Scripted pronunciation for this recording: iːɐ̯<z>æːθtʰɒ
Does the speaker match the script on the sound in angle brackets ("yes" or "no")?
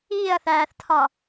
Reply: no